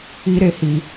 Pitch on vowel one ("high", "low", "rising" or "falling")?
high